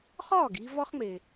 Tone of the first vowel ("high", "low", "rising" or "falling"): falling